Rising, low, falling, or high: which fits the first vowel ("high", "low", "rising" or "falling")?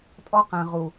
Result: high